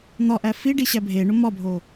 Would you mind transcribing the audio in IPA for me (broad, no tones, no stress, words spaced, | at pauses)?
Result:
n̪ɒʔæ fiɖiɕæ bʱeɳo mɒbʱo